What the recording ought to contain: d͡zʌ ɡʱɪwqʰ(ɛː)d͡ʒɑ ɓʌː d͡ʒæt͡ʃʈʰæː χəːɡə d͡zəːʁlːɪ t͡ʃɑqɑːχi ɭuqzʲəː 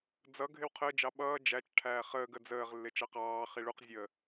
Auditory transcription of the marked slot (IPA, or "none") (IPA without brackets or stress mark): əː